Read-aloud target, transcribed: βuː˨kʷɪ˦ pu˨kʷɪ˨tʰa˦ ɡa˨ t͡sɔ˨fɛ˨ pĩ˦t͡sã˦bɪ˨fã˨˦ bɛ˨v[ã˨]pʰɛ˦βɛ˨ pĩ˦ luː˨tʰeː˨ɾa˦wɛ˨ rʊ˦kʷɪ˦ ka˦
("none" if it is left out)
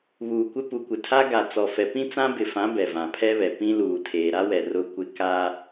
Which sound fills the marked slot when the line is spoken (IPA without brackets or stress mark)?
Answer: ã˨